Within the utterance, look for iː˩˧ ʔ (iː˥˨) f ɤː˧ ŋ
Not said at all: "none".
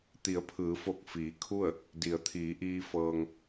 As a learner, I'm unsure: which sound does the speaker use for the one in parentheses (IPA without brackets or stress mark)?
iː˧